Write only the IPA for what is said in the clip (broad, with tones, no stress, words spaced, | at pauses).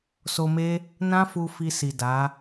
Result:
so˧me˦ | nã˦fu˧ fi˧si˨ da˨˦